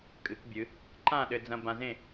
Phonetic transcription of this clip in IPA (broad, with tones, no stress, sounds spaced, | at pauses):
kʼ ɨ˩˧ k bʲ ɨ˩˧ | ǃ ã˥˨ ɗ ɘ˧ d͡z ɐ̃˧ b ã˧ z ẽ˥˨